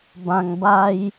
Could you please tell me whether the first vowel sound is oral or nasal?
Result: nasal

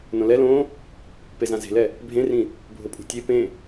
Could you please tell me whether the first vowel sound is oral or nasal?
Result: nasal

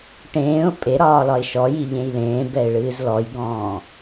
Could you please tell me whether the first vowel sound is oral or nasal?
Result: nasal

